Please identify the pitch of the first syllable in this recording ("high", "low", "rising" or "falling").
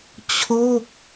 falling